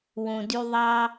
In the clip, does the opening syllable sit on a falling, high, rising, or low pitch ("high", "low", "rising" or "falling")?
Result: low